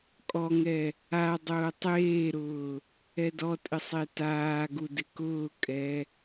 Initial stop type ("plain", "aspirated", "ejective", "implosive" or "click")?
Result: ejective